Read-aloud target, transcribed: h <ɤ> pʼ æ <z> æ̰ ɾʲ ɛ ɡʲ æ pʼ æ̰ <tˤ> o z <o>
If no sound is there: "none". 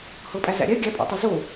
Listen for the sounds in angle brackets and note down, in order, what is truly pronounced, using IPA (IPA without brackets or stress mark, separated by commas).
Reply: ɤ, z, tˤ, o